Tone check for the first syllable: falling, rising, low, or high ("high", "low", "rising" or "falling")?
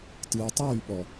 low